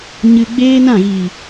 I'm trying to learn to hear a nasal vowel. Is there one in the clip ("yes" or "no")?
yes